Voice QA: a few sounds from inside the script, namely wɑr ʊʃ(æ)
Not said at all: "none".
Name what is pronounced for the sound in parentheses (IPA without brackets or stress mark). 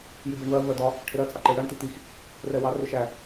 æ